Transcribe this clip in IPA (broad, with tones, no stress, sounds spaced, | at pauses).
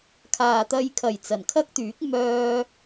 kʰ aː˨ t̪ ɐ˧ j kʰ ɐ˨˩ j t͡s ɐ˨˩ n kʰ ɐ˥ k̚ t̪ yː˨˥ k̚ m œː˧